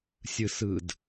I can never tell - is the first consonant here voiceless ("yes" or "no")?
yes